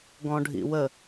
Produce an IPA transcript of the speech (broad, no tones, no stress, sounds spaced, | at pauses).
ɡ ɔ̃ ɖʱ ḭ w ə